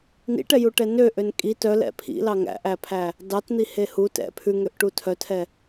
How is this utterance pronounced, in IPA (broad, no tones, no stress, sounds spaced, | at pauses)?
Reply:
n ḭ ʈ ɛ j u ʈ ɛ n ø ʔ ø n kʼ i t œ l ɛ̰ pʰ ḭ l ɑ ŋ æ̰ ʔ æ pʰ æ | d ɑ t n̪ i h e h u t ɛ̰ pʰ ʉ ŋ ø ʔ ʈ u tʰ œ tʰ ɛ